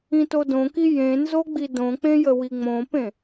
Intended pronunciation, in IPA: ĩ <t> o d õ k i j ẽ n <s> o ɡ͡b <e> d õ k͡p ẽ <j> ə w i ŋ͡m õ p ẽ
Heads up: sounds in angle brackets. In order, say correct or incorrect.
correct, incorrect, incorrect, correct

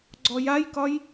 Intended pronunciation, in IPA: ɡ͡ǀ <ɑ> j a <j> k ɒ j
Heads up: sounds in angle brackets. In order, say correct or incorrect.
incorrect, correct

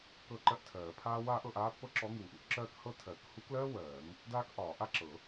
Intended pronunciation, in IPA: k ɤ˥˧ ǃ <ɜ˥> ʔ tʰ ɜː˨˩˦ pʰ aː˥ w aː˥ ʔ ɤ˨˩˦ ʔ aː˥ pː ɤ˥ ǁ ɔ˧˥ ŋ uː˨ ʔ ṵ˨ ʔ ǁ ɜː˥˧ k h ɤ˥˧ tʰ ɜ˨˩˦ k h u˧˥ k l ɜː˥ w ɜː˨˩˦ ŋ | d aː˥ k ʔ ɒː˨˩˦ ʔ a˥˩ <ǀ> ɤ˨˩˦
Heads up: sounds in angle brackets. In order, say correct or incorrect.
correct, incorrect

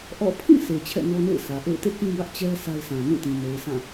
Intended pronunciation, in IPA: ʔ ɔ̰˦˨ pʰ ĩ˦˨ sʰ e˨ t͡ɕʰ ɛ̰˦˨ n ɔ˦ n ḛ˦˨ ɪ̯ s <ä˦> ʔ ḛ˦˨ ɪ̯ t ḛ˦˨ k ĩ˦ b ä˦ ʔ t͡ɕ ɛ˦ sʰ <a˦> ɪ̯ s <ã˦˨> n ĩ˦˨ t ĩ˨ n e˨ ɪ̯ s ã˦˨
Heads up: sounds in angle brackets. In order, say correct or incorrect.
incorrect, correct, incorrect

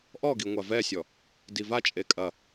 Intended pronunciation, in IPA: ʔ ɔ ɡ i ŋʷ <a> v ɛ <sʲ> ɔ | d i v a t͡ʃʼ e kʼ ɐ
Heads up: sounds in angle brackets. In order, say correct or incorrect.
correct, correct

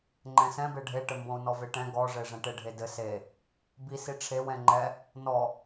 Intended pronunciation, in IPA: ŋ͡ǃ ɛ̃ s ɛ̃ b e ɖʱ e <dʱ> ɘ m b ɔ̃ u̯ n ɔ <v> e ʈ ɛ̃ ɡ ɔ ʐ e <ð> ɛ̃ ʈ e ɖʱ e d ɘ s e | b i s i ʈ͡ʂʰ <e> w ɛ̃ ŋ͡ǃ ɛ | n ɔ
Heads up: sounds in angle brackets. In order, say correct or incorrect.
incorrect, correct, incorrect, correct

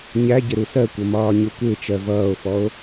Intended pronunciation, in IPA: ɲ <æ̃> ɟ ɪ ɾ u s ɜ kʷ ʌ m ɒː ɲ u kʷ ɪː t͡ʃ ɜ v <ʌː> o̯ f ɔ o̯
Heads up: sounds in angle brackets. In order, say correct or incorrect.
incorrect, correct

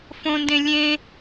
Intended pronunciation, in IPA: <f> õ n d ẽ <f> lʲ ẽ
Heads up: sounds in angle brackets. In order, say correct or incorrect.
correct, incorrect

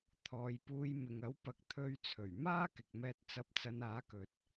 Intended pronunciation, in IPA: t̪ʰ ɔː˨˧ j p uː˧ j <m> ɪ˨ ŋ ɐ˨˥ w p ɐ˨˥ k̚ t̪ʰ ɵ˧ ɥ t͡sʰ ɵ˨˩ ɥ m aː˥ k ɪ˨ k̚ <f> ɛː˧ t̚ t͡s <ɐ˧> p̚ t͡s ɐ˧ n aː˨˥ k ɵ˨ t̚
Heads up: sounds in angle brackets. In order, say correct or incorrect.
correct, incorrect, correct

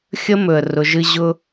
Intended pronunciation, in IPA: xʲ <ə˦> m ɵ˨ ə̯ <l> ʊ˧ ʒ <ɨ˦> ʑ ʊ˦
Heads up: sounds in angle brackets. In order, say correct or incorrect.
correct, incorrect, correct

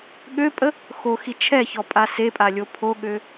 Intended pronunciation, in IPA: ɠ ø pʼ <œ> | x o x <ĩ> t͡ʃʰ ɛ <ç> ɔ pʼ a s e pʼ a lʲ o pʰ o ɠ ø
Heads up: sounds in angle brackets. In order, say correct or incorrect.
incorrect, incorrect, correct

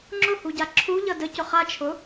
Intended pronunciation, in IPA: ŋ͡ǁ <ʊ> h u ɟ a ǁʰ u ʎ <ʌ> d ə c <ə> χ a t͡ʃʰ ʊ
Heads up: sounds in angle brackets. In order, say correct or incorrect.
correct, correct, incorrect

